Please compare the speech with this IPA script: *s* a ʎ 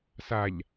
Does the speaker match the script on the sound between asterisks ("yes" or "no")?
yes